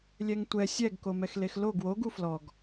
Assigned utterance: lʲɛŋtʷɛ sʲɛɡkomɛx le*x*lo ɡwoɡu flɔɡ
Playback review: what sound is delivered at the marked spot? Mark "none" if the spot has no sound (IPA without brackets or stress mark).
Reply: x